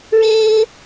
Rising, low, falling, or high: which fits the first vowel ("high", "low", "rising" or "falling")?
high